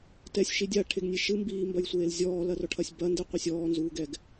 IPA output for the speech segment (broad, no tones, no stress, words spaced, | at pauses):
tɛsʲʃi dʲaʈʰeɡnʲe ʃɨmbiːmbɐjsʷeːl zʲɔːlɐrɔʈʰɐsʲ bɐndɨqʷisʲ ɔːnzuːɡɛɡ